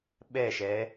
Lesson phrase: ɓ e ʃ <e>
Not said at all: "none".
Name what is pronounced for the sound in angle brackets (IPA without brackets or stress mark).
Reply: e